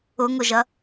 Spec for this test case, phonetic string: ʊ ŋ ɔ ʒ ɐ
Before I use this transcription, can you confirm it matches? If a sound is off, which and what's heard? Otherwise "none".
ɔ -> ʊ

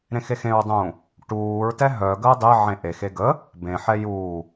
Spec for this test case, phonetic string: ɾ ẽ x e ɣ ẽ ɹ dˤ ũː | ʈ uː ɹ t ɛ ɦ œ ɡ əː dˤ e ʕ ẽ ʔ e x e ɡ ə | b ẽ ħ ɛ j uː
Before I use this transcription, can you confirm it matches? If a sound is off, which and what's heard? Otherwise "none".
ɣ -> x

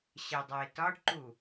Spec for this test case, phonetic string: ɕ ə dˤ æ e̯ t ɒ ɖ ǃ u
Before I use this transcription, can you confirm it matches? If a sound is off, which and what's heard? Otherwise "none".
none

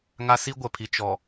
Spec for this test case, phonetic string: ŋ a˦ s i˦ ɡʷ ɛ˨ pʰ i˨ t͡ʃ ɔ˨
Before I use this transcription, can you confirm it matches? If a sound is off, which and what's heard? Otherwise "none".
none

